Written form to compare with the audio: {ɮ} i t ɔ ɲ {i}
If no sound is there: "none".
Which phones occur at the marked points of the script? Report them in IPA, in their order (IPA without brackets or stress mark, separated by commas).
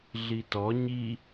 ɮ, i